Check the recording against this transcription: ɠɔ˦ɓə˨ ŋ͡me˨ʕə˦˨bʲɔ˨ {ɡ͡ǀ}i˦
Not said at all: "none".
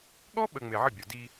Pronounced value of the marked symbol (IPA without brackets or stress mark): d